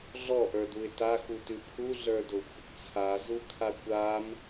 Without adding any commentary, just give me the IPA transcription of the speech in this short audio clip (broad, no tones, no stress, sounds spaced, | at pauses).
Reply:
ɮ ɔ ʔ ə˞ d u ɪ̯ t a x u t ʉ pʰ u ɮ ə˞ d ʊ xʷ | t͡sʰ a z u kʰ a kʷ a m